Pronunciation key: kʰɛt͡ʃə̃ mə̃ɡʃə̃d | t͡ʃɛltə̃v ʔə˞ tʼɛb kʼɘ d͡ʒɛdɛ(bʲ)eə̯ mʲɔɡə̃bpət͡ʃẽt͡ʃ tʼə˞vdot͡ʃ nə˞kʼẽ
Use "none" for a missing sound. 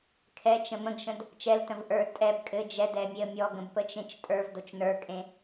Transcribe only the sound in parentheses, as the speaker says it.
mʲ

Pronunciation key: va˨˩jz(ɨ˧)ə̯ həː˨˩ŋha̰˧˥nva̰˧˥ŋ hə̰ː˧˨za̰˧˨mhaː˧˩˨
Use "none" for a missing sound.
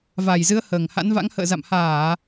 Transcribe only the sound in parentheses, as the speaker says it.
ɨ˨˦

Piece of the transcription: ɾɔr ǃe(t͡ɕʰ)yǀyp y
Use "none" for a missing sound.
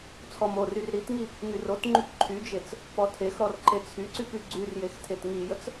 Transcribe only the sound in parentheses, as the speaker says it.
t͡sʰ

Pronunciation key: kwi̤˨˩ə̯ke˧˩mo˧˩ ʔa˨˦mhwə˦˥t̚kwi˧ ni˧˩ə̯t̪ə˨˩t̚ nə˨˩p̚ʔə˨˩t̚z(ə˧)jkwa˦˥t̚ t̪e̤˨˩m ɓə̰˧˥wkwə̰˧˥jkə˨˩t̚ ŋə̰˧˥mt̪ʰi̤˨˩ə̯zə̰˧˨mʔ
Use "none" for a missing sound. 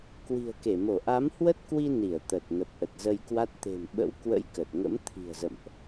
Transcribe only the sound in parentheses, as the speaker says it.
ə˧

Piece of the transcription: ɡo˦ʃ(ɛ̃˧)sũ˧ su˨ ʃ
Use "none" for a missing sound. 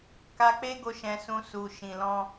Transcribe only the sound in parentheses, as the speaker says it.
ɛ̃˧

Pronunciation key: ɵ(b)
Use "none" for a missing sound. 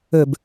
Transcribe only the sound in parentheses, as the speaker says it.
b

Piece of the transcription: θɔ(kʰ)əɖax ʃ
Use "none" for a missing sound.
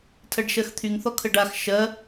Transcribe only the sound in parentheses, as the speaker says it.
kʰ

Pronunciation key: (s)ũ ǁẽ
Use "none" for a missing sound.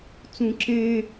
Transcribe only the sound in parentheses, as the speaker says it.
t͡s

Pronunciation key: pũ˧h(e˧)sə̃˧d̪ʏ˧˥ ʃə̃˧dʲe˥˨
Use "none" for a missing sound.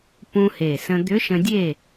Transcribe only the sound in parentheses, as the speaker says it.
e˨˩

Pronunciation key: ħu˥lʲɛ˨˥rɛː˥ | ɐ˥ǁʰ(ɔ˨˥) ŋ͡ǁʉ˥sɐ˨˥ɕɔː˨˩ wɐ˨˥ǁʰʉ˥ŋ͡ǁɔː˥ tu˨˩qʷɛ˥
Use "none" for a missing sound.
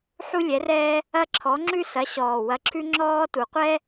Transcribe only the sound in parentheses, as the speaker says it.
ɔ˨˥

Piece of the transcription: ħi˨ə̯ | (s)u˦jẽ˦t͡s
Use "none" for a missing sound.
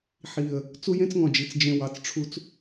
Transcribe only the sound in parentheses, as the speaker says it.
t͡s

